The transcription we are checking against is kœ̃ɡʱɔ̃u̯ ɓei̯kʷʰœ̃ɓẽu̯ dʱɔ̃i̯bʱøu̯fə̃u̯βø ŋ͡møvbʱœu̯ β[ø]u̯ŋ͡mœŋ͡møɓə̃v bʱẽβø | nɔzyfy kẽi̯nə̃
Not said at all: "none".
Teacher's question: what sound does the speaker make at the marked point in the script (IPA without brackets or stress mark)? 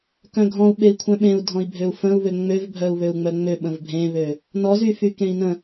ø